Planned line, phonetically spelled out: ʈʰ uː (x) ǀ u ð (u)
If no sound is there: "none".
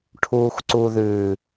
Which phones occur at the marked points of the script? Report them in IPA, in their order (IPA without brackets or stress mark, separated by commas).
x, ʉ